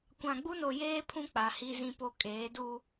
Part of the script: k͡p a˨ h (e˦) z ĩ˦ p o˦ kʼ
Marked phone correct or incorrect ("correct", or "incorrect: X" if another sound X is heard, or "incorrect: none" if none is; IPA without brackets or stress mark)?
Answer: incorrect: i˦